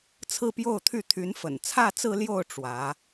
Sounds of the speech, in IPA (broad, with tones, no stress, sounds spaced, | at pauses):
t͡sʰ ɹ̩˥˧ p j o˥˧ ʊ̯ t̪ʰ y˥˩ t̪ʰ y˧˥ n f ə̰˨˩ n t͡sʰ ä˥˧ t͡s ɹ̩˥˧ l j o˥˩ ʊ̯ ʈ͡ʂ w ä˧˥